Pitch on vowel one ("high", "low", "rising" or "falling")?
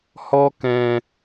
high